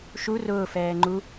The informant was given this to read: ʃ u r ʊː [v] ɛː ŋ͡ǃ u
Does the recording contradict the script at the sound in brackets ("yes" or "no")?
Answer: yes